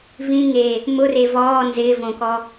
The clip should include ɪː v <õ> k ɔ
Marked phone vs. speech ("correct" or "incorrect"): correct